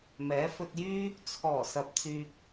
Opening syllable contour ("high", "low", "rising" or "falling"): rising